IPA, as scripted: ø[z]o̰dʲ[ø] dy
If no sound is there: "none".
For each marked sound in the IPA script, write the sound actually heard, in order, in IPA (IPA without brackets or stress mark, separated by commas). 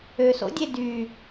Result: s, e